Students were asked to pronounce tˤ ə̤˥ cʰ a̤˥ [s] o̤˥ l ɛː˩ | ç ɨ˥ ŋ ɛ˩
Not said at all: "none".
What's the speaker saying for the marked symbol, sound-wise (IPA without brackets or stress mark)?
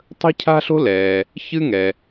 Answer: ɬ